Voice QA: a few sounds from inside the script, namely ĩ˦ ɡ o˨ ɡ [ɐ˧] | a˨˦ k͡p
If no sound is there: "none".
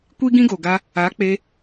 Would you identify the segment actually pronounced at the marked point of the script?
a˧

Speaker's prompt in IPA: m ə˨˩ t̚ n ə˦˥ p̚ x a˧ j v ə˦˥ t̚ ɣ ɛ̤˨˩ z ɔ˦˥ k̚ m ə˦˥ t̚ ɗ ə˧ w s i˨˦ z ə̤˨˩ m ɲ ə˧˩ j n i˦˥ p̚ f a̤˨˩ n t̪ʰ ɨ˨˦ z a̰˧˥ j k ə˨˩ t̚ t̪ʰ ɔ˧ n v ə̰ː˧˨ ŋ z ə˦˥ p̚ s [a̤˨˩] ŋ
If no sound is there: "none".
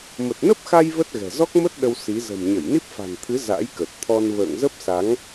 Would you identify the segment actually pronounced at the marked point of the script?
a˨˦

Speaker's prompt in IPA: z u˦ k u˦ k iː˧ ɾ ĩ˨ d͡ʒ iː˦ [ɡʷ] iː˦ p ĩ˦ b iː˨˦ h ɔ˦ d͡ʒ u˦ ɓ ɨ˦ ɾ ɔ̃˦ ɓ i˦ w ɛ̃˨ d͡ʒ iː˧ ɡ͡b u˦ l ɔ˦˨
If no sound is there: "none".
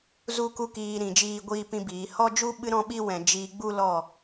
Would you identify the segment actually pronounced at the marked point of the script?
ɡʷ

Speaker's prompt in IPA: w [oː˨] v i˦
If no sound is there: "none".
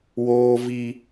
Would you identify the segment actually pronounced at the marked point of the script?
oː˦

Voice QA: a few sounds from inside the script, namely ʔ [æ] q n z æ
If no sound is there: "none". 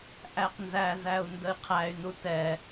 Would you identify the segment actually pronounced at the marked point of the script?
æ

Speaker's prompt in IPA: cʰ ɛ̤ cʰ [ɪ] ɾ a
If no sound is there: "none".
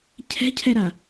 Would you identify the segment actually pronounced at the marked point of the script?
ɛ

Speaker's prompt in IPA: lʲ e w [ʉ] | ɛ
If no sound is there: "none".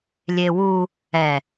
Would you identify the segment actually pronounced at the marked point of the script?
u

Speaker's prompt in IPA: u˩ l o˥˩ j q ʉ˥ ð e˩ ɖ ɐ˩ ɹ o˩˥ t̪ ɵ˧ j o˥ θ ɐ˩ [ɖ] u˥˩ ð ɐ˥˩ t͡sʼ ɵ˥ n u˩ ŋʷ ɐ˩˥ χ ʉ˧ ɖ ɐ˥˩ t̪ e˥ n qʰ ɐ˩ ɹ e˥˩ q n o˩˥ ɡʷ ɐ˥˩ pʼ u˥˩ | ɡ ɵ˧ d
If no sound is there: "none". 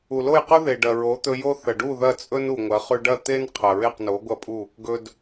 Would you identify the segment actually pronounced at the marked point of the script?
ɖ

